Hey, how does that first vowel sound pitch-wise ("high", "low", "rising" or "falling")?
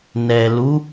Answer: low